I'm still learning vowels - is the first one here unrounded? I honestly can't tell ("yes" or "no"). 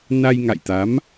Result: yes